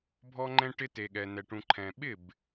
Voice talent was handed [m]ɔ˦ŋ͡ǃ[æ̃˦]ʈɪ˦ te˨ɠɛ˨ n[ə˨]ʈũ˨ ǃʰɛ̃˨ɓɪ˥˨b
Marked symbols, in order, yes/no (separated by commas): no, no, no